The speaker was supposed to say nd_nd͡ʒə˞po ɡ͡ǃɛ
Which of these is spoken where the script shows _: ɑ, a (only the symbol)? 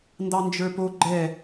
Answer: ɑ